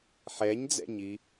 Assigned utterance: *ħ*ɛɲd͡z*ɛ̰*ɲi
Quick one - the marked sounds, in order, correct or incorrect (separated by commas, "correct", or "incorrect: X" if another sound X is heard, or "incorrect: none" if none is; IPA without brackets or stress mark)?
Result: correct, correct